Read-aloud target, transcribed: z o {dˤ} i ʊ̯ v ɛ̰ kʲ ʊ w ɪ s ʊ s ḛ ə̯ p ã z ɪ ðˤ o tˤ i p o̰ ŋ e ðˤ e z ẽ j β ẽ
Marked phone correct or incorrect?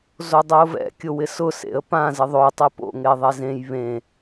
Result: correct